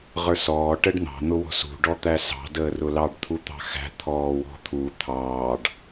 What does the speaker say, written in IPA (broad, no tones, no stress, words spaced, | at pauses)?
ʁə˞sɔː ʈəɖn̪ɑ̤ n̪ʊwɔ̤sṳ ɖɔt̪æsɑ̤ dəːrʊlɑɖ t̪ʰut̪ɑ̤xæ̤ t̪ʰɔːwɔ̤t̪ʰu t̪ʰɑːɖ